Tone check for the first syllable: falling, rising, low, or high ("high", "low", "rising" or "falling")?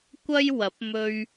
high